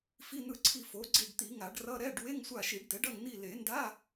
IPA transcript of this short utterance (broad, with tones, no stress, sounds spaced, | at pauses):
f i˧˥˧ n̪ ɯ˦˨ ǀʰ i˦˨ f o˩˥ ɡ͡ǀ i˦˨ ɖ t̪ i˨˩˦ ŋ a˨˩˦ ɖ r ʌ˧˥˧ ɾ ɛ˧˥˧ ɖ w e˧˥˧ ŋ sʷ a˦˨ ʃ i˨˩˦ ɖ d̪ ɛ˩˥ ɖ ʌ˦˨ ŋ n̪ i˦˨ l e˨˩˦ n d a˧˥˧